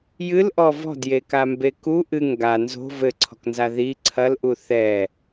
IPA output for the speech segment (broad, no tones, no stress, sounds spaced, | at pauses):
j ɨ l ʔ ɔ v ɔ̤ d j e k a m b e k u ʔ ɨ ŋ ɡ a n z o̤ v ɘ ǀʰ ɔ̤ k n z a ð i ǀʰ ɐ l ʔ u θ ɛ